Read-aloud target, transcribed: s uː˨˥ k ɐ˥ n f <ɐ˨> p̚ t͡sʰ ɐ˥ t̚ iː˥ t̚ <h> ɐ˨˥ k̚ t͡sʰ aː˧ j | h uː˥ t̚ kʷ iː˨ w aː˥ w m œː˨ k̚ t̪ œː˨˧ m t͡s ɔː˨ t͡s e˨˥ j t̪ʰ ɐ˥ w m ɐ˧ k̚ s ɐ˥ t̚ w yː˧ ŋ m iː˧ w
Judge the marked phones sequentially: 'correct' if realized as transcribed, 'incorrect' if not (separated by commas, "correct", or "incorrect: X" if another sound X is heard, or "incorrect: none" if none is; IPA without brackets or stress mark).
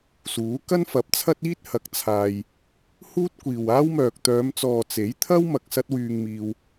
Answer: incorrect: ɐ˨˥, correct